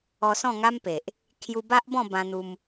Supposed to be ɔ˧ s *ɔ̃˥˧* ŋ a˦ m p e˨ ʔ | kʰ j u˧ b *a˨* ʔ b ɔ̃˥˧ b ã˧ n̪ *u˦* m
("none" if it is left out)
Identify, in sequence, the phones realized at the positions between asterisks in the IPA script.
ɔ̃˥˧, a˦, u˧

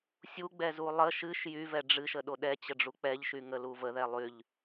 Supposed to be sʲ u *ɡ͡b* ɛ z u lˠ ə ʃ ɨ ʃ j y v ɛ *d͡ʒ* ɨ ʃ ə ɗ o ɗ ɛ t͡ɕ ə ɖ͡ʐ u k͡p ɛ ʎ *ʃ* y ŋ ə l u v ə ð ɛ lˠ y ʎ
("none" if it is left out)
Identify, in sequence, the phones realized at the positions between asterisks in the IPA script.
ɡ͡b, ɖ͡ʐ, ʃ

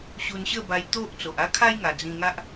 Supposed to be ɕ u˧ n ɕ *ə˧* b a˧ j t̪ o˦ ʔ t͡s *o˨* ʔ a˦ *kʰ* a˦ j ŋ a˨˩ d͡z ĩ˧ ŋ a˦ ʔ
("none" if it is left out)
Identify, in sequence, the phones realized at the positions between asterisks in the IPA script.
ə˥˧, o˨, kʰ

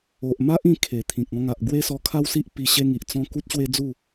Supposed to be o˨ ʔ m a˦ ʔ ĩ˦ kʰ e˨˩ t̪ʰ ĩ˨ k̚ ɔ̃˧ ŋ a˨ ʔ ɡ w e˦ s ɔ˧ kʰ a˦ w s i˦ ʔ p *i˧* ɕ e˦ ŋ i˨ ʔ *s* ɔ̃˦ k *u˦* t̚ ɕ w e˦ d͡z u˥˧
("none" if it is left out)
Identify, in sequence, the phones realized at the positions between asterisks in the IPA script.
i˧, t͡s, u˦

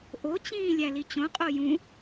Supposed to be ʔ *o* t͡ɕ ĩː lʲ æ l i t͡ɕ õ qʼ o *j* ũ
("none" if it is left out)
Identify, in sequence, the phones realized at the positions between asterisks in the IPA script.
o, j

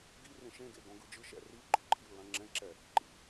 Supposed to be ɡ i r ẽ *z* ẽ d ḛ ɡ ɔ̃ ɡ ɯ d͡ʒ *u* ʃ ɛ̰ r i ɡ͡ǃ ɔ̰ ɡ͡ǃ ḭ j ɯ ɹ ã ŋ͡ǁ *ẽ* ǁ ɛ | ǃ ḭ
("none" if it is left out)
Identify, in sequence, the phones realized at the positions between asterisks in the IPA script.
ʃ, ɯ, ɛ̃

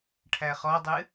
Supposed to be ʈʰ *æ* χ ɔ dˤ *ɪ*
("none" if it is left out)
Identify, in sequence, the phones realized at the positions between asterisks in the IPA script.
æ, ɨ

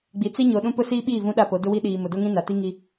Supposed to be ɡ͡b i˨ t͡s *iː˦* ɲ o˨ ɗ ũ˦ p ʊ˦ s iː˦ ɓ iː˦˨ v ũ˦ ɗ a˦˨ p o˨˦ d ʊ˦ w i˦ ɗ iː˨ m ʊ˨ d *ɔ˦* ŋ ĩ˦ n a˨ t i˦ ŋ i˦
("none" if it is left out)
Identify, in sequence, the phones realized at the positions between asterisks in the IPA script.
i˦, o˦

